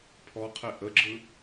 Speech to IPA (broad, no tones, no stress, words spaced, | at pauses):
pʰɔqʰe ʔəɡ͡ǁɯ